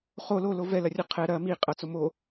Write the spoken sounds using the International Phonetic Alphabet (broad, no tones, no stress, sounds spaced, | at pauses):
χ o l o l o v ɛ l ɐ rʲ ɐ qʰ ɛ ɾ ɐ m i qʼ ɐ t͡s o m o